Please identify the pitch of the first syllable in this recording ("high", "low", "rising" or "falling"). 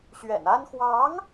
low